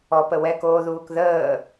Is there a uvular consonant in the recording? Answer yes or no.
no